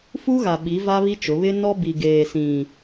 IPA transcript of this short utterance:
fu˦ɣa˨ɓi˨˦ va˦βi˦t͡ʃʊ˨˦ βɪ˦ nɔ˦bi˨ ɡeː˨ sĩ˨

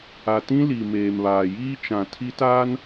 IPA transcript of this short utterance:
a˨tĩ˦ li˨ meː˨mβaː˨jiː˦t͡ʃã˨ tʰi˦taː˦n

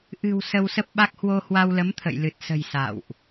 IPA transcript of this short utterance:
ʔɨ̤˨˩w sə˧wsə˦˥p̚ɓa˦˥k̚ hwo˧hwa˧wlə˨˦m t̪ʰə̰˧˨jlɨ˨˩t̚sə̤˨˩j sa̰˧˨wʔ

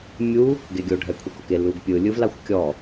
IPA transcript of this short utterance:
mʲu | ɡeɡʲo ɖʱɛkʷʰikoke luɡpʲɯ lʲɯvlaxʷkʲɔ

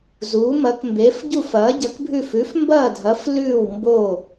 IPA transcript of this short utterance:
zuː˧˥mɐ˧˥kmbe˧˥f ɟu˥˧fɐː˧˥ ɟɐ˧˥kbʱʉ˥˧f ʉ˧˥f mbɐː˥˧dʱɐ˧˥f lʉː˥˧wmbo˥˧

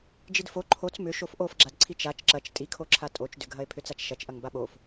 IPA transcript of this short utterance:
d͡ʒidfo ǃʰot͡s mʏ ʃofʔofɡ͡ǁad ǀʰit͡ʃat͡ʃ ǁɐt͡ʃ tʼikʰo ǁʰatʼot͡ʃdʏɡʱɐe̯ pʰʏt͡sat͡ʃʃɐt͡ʃʔɐŋ baɓof

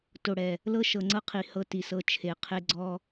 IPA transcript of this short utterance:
to˨ɽɛ˨ | lɤ˦ʃɤ˨ŋ͡ǀɤ˦qʰi˨ hɤ˦ti˨sɤ˦ t͡ʃʰe˨ qʰe˦ɡ͡ǀɔ˦

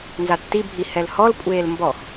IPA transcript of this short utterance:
nzatːibʱi hɛlhɔlkʷʼeːl mbɔx

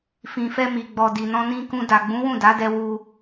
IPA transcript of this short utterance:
fĩ˨fɛ˧ mi˨ɡ͡bɔ˨ di˨nɔ̃˧nĩ˧kũ˧ da˨ɡ͡bũ˨˦ wũ˦˨da˨˦dɛ˧ wu˧

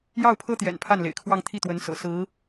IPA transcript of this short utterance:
jɑ˥˩ʊ̯pʰɤ˥t̪jɛ̰˨˩n pʰa˥˩nlḛ˨˩ɪ̯kʰwɑ˥˧ŋ t̪ʰi˥˩t̪wə˧˥n sɤ̰˨˩sɹ̩˧˥

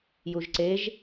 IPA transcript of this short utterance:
juʒǀeʒ

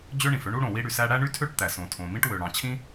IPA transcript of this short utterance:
d͡ʑø˥ɳĩ˩fø˥ɳu˥ ɽõ˩wi˥ɽy˩sæ˥ ɽæ˥ɳy˥tʰø˥ʈ t̪æ˩ sõ˩tʰõ˩mĩ˥ʈ wø˩ɽɑ̃˩ t͡ɕʰĩ˥

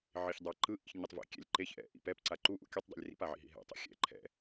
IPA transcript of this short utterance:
ʕiçdˤaǃɯ ʔḭçɲutˤvḭ kʲɛ̰lʲ ǃeç ʔɛ̰ ʔḭp ɛpǀa ǃu ʔṵkʲʌtˤdˤḛlʲ rḭpaʕḭ ɦḭɦɛ̰tˤɛ̰ xʲɛ̰ ǃʰɛ̰

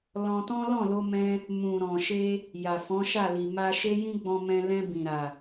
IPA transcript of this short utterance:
lɔ̃˧tɔ̃˦ lɔ̃˦˨lo˧mɛ̃˧ | mũ˨ ɾɔ̃˨ʃe˧ | ja˨fɔ̃˨˦ʃa˦˨li˨ ma˧ʃe˦jĩ˦ ɡ͡bɔ̃˧mɛ̃˧lɛ̃˧ bĩ˨ ɾa˨

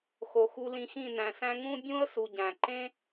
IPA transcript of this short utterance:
xo˨xu˧lĩ˧xĩ˦˨ næ̃˨sæ̃˦ ŋũ˦bʲũ˦ə̯ su˨ɟæ̃˨ ǃẽ˦

